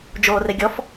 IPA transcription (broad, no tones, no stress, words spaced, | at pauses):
d͡ʒoːreɡʲɔf